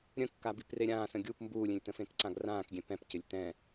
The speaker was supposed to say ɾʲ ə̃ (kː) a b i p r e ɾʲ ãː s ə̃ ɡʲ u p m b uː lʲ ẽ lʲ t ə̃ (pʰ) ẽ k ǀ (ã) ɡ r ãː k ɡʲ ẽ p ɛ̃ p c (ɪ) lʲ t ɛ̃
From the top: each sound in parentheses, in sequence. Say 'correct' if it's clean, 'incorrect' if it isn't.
correct, incorrect: f, correct, correct

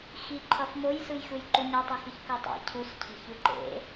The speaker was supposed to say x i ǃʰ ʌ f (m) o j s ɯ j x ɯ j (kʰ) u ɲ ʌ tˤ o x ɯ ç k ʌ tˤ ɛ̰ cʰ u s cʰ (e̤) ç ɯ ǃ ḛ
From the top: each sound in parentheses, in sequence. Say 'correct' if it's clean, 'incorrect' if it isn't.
correct, incorrect: ǃ, correct

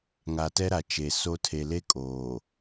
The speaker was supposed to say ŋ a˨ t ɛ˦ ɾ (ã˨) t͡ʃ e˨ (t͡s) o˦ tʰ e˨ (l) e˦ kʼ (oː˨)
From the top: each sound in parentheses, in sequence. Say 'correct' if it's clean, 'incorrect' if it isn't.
incorrect: a˨, incorrect: s, correct, correct

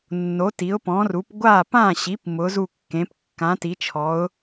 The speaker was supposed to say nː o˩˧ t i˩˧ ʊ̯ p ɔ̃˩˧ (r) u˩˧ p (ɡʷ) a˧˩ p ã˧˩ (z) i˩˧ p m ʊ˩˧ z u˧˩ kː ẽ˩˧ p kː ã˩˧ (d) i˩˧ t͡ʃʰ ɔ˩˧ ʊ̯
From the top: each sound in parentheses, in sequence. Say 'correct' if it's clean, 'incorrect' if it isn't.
correct, correct, incorrect: ɕ, incorrect: t

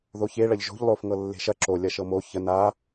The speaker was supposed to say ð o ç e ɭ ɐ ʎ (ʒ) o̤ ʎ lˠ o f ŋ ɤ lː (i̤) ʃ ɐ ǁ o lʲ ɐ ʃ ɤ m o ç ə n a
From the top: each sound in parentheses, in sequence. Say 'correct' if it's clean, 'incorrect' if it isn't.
correct, incorrect: e̤

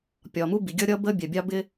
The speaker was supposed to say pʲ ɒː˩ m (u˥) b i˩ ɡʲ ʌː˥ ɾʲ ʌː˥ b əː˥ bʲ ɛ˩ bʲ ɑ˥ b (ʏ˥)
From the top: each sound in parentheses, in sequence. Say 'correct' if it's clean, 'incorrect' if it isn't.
correct, incorrect: ɪ˥

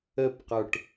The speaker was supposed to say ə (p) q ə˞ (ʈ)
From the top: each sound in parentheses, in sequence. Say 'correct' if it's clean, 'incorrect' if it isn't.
correct, correct

